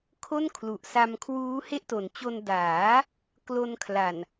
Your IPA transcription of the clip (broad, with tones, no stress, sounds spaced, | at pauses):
kʰ o˥˩ n kʰ l u˨˩ ʔ s a˧ m kʰ w uː˦˥ h e˥˩ ʔ t o˩˦ n t͡ɕ o˧ n d aː˩˦ | k l o˧ n kʰ l a˨˩ n